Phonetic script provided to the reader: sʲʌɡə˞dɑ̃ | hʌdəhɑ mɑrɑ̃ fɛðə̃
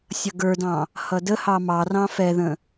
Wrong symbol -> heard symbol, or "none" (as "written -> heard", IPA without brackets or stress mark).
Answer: none